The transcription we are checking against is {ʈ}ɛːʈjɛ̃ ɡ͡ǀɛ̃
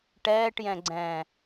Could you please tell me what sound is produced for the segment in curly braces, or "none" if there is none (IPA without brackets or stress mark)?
ʈ